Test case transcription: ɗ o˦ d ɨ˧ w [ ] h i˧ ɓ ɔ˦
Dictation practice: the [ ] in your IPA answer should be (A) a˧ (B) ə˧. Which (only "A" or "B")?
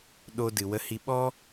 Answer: B